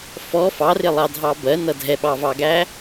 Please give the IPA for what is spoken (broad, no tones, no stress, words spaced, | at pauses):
fɔ fɑrɪlˠɑdʱɑ bɜnʌ dʱɛɓɑvɑɡæ